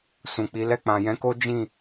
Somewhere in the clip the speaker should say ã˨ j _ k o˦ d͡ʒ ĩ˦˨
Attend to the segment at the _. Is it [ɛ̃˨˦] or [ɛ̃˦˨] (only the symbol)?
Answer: ɛ̃˨˦